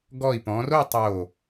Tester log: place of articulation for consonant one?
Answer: velar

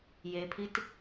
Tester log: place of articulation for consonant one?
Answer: palatal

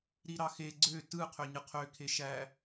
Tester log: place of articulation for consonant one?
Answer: alveolar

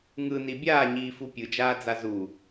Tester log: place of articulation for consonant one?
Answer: velar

